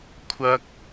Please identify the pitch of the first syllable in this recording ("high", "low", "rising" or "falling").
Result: high